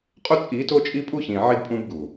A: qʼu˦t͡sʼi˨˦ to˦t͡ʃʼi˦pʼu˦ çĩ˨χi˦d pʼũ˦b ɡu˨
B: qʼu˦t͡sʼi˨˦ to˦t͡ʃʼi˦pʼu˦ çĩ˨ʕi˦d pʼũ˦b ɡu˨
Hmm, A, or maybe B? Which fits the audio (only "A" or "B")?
B